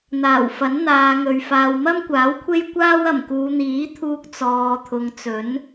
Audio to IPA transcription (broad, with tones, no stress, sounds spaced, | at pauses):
n̪ aː˨˩ w f ɐ˨˥ n n̪ aː˨˧ ŋ ɵ˨ ɥ f aː˨ w m ɐ˥ m kʷ aː˨˥ w kʷʰ e˥ j kʷ aː˥ w ɐ˨˩ m k uː˨˧ n̪ iː˨˥ t̪ʰ uː˧ k̚ t͡s ɔː˨ t̪ʰ ʊ˨ ŋ t͡s ɵ˨˥ n